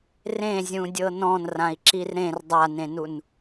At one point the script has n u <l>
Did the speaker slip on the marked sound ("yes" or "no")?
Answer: yes